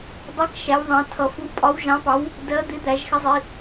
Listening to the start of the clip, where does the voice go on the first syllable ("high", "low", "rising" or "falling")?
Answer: rising